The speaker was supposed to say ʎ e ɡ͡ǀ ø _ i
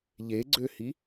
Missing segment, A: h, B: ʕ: A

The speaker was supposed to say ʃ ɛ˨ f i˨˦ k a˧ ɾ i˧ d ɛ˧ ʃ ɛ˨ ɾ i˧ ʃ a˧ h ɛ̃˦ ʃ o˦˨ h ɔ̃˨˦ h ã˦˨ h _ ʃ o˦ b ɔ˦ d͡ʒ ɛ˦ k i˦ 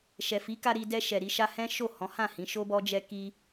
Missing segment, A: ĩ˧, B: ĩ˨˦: B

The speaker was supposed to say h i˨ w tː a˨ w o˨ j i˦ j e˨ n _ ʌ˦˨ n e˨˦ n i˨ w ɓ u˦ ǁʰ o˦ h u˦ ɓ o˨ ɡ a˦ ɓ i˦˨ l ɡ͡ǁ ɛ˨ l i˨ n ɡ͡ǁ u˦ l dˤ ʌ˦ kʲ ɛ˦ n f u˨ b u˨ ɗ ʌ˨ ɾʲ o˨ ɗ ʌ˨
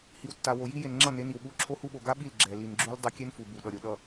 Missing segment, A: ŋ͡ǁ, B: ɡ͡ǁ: A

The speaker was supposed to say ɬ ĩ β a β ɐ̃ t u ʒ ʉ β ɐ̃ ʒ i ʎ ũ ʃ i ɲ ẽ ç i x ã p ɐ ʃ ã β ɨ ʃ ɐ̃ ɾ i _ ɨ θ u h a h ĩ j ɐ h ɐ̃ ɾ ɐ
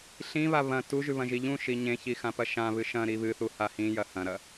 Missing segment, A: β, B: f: A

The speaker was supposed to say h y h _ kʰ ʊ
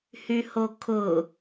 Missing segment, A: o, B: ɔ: A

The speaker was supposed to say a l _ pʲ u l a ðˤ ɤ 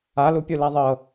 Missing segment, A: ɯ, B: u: B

